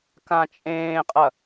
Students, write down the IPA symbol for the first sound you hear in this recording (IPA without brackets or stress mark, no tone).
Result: k